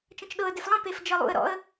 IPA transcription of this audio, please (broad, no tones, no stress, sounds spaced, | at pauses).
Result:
t͡ʃ ə̃ t͡ʃ ɗ ɤ ə̯ d e f lˠ ə̃ p e f d͡ʒ ɤ lˠ ṵ ə̯ ɾ ɔ̰ ə̯